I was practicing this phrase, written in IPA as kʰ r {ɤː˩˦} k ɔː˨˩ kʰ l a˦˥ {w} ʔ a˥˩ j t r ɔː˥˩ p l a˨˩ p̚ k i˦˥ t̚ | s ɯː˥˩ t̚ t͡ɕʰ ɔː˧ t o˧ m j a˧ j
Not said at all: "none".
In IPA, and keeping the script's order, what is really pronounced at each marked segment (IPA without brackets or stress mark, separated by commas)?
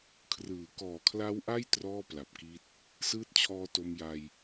ɯː˩˦, w